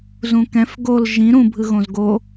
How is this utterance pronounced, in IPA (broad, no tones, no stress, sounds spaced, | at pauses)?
z ũ k ɛ̃ f ɡ o l ʒ ĩ ɾ ũ bʱ ɯ ɣ õ z ɡ o